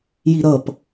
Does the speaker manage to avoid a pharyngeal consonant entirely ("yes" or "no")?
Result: yes